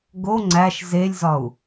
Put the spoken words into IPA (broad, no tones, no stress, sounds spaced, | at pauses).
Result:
ɡ o ŋ͡ǀ æ ʃ z e lʲ z ɒ u̯